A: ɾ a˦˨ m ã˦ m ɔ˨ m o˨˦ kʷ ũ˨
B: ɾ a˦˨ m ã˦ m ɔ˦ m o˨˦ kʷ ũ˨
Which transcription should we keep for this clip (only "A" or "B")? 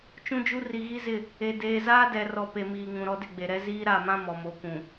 A